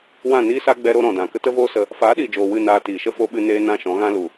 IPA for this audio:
w ã˦˨ n iː˦ s a˦ ɡ͡b ɛ˧ ɾ o˧ ɾ ɔ̃˨ d ã˨ k ə˦ t ə˦ v oː˦ s ə˧ | f aː˨˦ ɗ iː˨ d͡ʒ oː˨ w ɨ˦˨ n aː˧ t iː˨ ʃ ə˦ f o˦ ɓ ɨ˦ n eː˧ n ã˦˨ ʃ ɔ̃˨˦ ɣ ã˦ l u˨

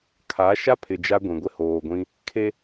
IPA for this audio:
kʰ a˨˦ ʃ a˦ pʰ ɪ˨ d͡ʒ a˦ ɡʷ ĩ˨ ɡʷ ɪ˦ h oː˨ ɡʷ ĩ˦ | kʰ e˦

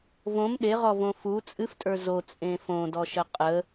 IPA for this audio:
v õ m ɗ e ʁ ɔ v õ f u t͡sʼ ɨ f tʼ ə˞ z o t͡sʼ ẽ f õ d ɔ ʃ ə qʼ ə

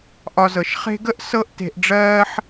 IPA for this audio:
ʔ ɒ˨ z ɤ˩ ʃ χ e̤˦ ɡ ə˥ ʔ s ɤ˦ ʔ t e̤˨ ʔ ɖ͡ʐ ɜː˦ ħ

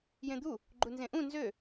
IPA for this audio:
j ẽ d̪ u | ɡ͡ǃ u n z ẽ ʔ ũ n z ø

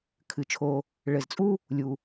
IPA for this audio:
kʰ ɨ˩ t͡ʃʰ o˨ | ɭ ɘ˨ z t͡sʼ u˥ | lʲ u˨

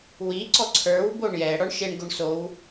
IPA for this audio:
w i ǀ ɔ ǀʰ ə˞ w b o ɳ j ɛ ɽ ɔ ɳ ʃ e ɳ ɡ o ɳ s o w

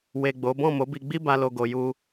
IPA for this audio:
w e˨ ɡ͡b o˨˦ b ɔ̃˦˨ m o˨˦ b i˧ ɡ͡b i˦ b a˧ l o˧ ɡ o˨ j u˧

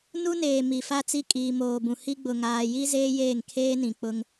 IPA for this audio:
n u˦ n eː˨ m i˨ f a˦ t͡s i˦ kʼ iː˨ m oː˨ b ũ˨ h i˦ ɡ͡b ʊ˨ ŋ aː˨ j i˦ z eː˦ j eː˦˨ ŋ kʰ eː˦ n ĩ˨ k͡p ʊ˦ ŋ

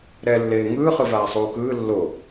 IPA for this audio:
ɾ ɛ lː eː ŋ ɯː χ ɯ v aː sˤ uː k ɯː lː o

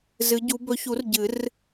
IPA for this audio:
z ɨ˨˦ ɟ u˨˦ b ɵ˨˦ ç u˨˩˦ r ɟ ɨ˨˩˦ r

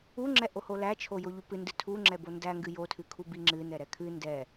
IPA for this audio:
u ŋ͡ǁ ɛ ʔ o h o l æ t͡ʃʰ o j o ʎ u p ɨ n d ɨ tʰ u ŋ͡ǁ ɛ b o n d æ ŋ ɡ ɨ j o tʰ ɨ kʰ u b i ŋ͡ǁ ɨ n ɛ ɾ ɛ kʰ ɨ n d ɛ

